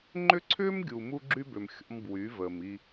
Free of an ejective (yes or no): yes